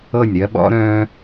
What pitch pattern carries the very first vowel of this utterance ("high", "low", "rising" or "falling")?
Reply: falling